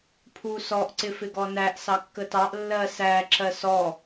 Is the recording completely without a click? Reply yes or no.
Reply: no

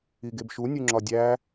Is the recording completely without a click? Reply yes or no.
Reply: no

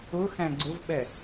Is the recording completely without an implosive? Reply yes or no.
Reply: no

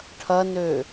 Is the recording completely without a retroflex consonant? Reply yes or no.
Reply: no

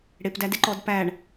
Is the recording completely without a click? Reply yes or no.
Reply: no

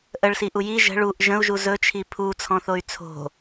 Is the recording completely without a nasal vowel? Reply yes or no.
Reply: no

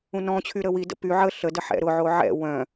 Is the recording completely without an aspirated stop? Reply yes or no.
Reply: no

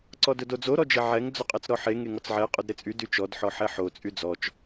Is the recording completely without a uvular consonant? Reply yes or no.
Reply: no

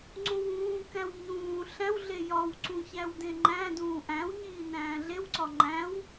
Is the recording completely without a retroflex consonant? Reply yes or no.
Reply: yes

